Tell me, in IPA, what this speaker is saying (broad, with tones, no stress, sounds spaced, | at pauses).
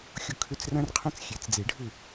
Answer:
xʲ ʊ˥˨ kʰ ʏ˥˨ t͡s r ɐ̃˥ r qʰ ɐ̃˥ t͡s xʲ e˩˥ t͡s d͡z e˨˩˦ ɖʱ ʏ˥˨